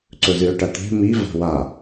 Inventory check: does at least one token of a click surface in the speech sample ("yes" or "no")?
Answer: yes